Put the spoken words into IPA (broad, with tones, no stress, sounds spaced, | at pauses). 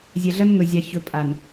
zʲ ɛ˨ ɮ ɐ˦ n ŋ ɵ˨ zʲ ɑ˨ ç ɵ˨ pʼ a˨ n